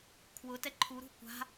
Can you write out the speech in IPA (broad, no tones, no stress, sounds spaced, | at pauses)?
kʰ w ʊ t ɛ ǃʰ u ɾ ṳ kʷ a̤